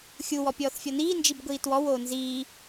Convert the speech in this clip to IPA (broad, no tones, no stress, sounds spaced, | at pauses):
xʲ u w ɔ pʲ ɔː θ fʲ ɔ n iː n d͡ʒ i b ɡʷ iː t w ɔ w oː n z iː